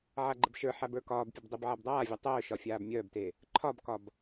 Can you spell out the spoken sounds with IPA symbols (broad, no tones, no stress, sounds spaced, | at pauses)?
ʕ a ɡ͡ǃ ə b ʃ ə˞ ħ a b ə˞ k ɒː b pʲ ə b dˤ e b ʕ a b dˤ aː vʲ a tˤ œː ʃ ɒ fʲ aː b mʲ œː b t e | ǃʰ ɒ b k ɒ b